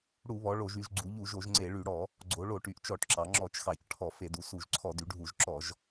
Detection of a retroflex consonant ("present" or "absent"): present